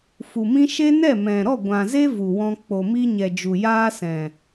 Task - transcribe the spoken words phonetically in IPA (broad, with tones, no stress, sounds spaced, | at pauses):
f u˨ m ĩ˦ ʃ e˦ n ɛ˦˨ m ɛ̃˨ ɾ ɔ˦˨ ɡʷ ã˨ z e˦ v u˨ w ɔ̃˧ k͡p o˨ m i˧ ɲ ɛ˨ d͡ʒ u˨ j aː˦ s ɛ̃˨